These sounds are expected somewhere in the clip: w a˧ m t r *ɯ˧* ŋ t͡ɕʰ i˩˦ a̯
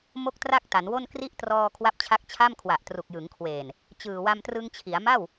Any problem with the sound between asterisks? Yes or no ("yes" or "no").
no